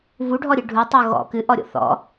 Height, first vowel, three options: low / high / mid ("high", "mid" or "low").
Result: high